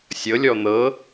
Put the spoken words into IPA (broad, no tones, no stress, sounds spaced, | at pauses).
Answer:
sʲ ɤ lʲ ɔ n̪ ɤ